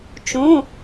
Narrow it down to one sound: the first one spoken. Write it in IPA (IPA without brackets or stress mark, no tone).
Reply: t͡ʃ